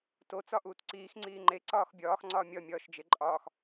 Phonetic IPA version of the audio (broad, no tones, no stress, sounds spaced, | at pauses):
t o t͡s ɒ ʔ uː t ǀ iː x ŋ͡ǀ iː ŋ͡ǃ e ǀ ɒː x bʲ ɒː x ŋ͡ǀ ɒː mʲ ɒ mʲ ɒː ʃ d͡ʒ e ǃʼ ɒː x